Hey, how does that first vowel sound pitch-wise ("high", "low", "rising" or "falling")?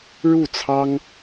falling